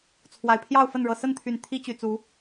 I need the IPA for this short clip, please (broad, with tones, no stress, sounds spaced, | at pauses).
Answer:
t͡sʰ w a˨˩ ɪ̯ pʰ j ɑ˥˨ ʊ̯ f ə˥˨ n ɻ ɤ˨˩ s ə˥˨ n t̪ʰ y˨˩ n t̪ʰ i˦ t͡ɕ y˨˩ t͡s u˨˦